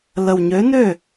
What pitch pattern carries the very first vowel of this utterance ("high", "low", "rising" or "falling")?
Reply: low